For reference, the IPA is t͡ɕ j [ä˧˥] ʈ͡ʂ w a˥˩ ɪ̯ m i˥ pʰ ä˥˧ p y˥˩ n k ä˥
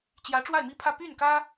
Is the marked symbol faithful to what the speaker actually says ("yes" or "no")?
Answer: yes